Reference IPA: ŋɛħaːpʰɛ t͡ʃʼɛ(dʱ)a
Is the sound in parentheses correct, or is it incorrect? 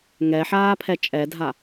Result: correct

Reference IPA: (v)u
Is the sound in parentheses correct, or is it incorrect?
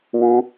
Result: incorrect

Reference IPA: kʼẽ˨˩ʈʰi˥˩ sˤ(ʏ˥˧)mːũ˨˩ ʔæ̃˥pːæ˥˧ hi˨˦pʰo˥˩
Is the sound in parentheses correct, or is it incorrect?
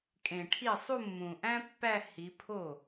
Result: incorrect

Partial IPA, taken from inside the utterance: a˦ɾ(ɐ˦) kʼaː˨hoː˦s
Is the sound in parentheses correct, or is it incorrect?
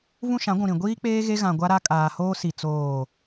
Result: incorrect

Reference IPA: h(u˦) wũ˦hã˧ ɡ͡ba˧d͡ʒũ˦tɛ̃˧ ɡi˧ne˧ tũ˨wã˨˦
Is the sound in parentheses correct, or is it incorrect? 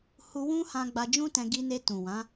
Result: incorrect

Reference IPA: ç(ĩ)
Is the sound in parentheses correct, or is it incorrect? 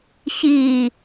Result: incorrect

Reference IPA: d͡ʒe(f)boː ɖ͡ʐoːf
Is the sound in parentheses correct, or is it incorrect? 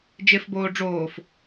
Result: correct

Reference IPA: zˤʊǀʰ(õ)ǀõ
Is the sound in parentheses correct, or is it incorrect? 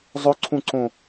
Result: incorrect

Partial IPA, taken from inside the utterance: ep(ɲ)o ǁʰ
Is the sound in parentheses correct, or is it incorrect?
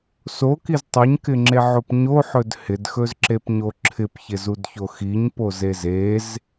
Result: correct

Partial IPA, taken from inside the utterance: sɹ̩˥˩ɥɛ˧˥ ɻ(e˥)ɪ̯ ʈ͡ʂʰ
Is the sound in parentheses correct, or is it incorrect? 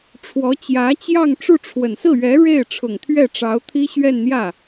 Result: incorrect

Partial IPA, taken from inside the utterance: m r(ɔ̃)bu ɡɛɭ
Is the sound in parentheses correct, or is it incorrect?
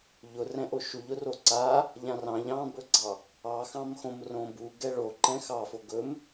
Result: incorrect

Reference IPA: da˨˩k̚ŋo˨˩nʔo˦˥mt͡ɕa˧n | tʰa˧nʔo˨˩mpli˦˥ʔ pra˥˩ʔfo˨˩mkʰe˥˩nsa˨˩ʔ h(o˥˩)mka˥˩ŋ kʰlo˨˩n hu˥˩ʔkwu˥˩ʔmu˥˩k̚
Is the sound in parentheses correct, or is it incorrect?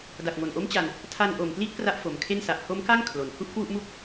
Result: incorrect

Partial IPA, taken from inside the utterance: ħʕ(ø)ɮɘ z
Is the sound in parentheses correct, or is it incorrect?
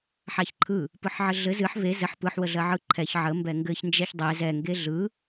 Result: incorrect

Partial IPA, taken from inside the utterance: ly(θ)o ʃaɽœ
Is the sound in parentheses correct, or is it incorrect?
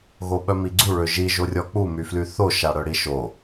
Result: correct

